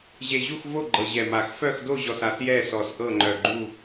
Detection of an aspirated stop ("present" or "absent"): absent